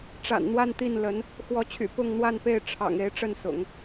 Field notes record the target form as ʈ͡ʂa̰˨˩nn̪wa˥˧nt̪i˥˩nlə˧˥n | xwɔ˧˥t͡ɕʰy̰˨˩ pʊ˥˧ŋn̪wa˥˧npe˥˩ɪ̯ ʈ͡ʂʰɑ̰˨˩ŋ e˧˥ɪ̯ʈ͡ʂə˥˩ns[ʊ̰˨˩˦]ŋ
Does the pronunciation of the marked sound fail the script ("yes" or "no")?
no